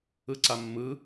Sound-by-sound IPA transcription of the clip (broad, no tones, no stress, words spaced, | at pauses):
ɯǀamːɯ